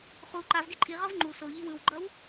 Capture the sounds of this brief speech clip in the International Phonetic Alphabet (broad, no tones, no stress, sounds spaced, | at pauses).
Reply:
χ u ǃ a v ɡ e ǃʼ i ʁ ʌ v ŋ͡ǃ u s o ʎ i w ɯ w ɡ͡ǃ ʌ w